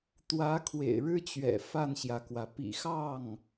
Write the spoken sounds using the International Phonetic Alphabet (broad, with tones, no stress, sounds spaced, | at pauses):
t̪ w ä˧˥ kʰ w ḛ˨˩ ɪ̯ ɻ ɻ̩˥ t͡ɕ ɥ ɛ̰˨˩ f a˥˩ n ɕ j ä˩ k w ä˩ p ḭ˨˩ x ɑ˥˩ ŋ